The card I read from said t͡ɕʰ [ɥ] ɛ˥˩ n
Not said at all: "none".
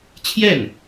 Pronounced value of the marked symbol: j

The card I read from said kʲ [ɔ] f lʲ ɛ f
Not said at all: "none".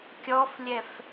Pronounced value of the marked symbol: ɔ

